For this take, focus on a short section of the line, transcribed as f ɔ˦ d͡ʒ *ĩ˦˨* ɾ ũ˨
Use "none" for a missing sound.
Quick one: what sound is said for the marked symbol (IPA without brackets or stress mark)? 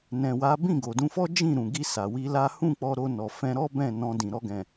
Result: ĩ˦˨